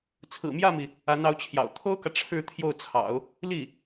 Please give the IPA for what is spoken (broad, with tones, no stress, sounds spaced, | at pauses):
t͡sʰ ɹ̩˨˩ m j ä˥˩ m i˩ | a˧˥ n ɑ˧˥ ʊ̯ t͡ɕʰ j ɑ̰˨˩ ʊ̯ t̪ʰ o˥ ʊ̯ k ä˨ ʈ͡ʂʰ ɻ̩˥˧ t̪ʰ j o˥˩ ʊ̯ t͡sʰ ɑ̰˨˩˦ ʊ̯ | l i˥˩